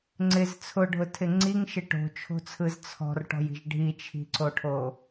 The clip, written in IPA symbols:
ŋ͡ǀ ɪ z t͡sʰ ʊ ɖʱ ʊ tʰ ɪ ŋ͡ǀ i ŋ ʃ ɪ ʈ o̤ t͡ʃʰ o̤ t͡sʰ ɯ z t͡sʰ ɔ̤ r ʈ ɔ̤ j i̤ ʒ ɖʱ i t͡ʃʰ i̤ ǀ o ʈʰ o

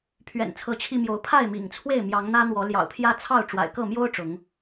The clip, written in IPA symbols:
pʰ ɥ ɛ̰˨˩ n t͡sʰ ɤ˨˦ t͡ɕʰ i˧ m j o˨˦ ʊ̯ pʰ a˥˨ ɪ̯ m ḭ˨˩ ŋ t͡sʰ w e˥˨ ɪ̯ m j ɑ˨˦ ŋ n̪ ä˦ n̪ w ɔ˨˦ l j ɑ̰˨˩ ʊ̯ pʰ j ä˦ t͡sʰ ɑ˥˨ ʊ̯ ʈ͡ʂ w a̰˨˩ ɪ̯ k ɤ˥˨ m j o˦ ʊ̯ ʈ͡ʂ ʊ˨˦ ŋ

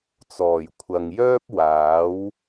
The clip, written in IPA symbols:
t͡s ɔː˨˩ j kʷʰ ɐ˨ ŋ j œː˥ p̚ w aː˨˥ w

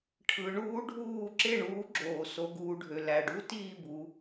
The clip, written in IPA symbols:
ʈʰ ɯ˩˧ ɳ uː˧˥ ɖʱ uː˦˨ ǁ e˦˨ ɳ uː˩˥ ɡ͡ǁ oː˩ s o˩˧ ɡ uː˩˧ ɖʱ ø˩ l æ˩ ɖ u˧˥ t iː˦˨ b u˩˧

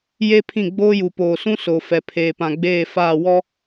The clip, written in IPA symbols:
j e˦ pʰ ĩ˦˨ ɡ͡b oː˦ j u˨ p oː˨ s ũ˦ s o˨ f ɛ˨ pʰ eː˨ p ã˨ ɡ͡b eː˦˨ f aː˦˨ w ɔ˦

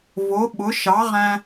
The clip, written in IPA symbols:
v o˩˥ ɓ ʊ˩˥ ʃ ɑ˩˥ ʁ æ̃˧

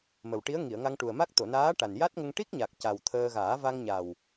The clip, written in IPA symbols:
m ə˨˩ w ʈ i˧˥ ə̯ ŋ i˨˩˨ ə̯ ŋ a˧ ŋ ʈ u˨˩ ə̯ m a˦˥ k̚ t̪ o˨˩˨ n aː˧˥ ʈ a˨˩ n j a˦˥ t̚ ŋ ə˧ ŋ ʈ i˦˥ k̚ ɲ a˨˩ k̚ c a˨˩ w t̪ʰ əː˧ ɣ aː˨˩˦ v a˧ ŋ ɲ a˨˩ w

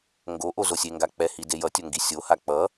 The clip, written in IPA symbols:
ŋ ɡ o ʔ o z o sʲ e ŋ ɡ a k͡p ɛ h i d e j ʌ tʲ o ŋ ɡ i sʲ o h a k͡p ʌ

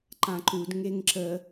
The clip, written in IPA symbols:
ǃ ã ǃ u d ŋ e ŋ ǁ ə

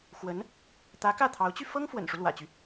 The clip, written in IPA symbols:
x w ə˧˥ n | t̪ ä˧˥ k ä˥˩ t̪ʰ ɑ˧˥ ʊ̯ t͡ɕ y˧ f ɤ˥ ŋ f w ə̰˨˩ n ʂ u˦ l w ä̰˨˩ t͡ɕ y˦

